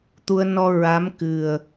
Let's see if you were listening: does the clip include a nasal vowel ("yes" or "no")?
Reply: no